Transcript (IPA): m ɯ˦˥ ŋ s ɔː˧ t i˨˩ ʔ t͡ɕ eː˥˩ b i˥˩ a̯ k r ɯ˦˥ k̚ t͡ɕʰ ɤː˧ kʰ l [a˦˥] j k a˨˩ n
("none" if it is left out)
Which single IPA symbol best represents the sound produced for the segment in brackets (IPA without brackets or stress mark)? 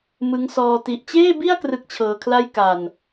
a˥˩